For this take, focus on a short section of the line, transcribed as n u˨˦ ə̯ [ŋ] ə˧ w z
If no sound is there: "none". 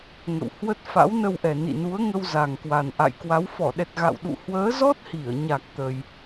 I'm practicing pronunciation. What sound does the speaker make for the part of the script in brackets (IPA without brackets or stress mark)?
ŋ